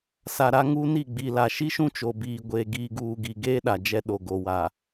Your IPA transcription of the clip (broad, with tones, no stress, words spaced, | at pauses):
sa˨ɾa˦ ŋuː˦ni˦˨ɡ͡bi˨la˨ ʃi˦ʃũ˦ t͡ʃo˨biː˨ɡʷeː˨ ɡiː˨ɡuː˨ɡi˨ ɡeː˦ɗa˨ d͡ʒɛ˦ɗo˨ ɡo˨wa˨